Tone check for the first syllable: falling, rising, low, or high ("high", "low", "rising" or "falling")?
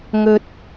low